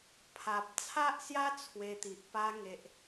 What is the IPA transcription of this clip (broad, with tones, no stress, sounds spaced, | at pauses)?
pʰ a˨ p̚ t͡sʰ a˦ ʔ s j a˦ t͡sʰ w e˧ t̪ i˨ ʔ p a˧ ŋ e˨ ʔ